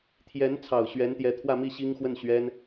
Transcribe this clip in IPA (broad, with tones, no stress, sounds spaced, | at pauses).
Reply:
t̪ʰ j ɛ˧˥ n t͡sʰ ɑ˨˩ ʊ̯ ɕ ɥ ɛ˧˥ n t̪ j ɛ˧˥ t̪ʰ w ä˥˧ m i˥˩ ɕ i˥ ŋ x w ə˥˩ n ɕ ɥ ɛ˥ n